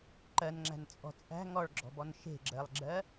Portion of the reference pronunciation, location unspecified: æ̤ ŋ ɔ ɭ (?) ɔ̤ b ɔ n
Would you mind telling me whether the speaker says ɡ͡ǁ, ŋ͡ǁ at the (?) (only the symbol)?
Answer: ɡ͡ǁ